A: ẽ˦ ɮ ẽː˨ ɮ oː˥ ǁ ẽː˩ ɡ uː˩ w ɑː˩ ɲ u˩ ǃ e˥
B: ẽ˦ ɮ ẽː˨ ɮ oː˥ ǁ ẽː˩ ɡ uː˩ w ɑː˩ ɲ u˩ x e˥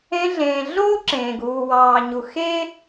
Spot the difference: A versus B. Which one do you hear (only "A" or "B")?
B